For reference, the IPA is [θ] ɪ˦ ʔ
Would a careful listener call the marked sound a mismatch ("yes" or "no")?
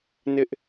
yes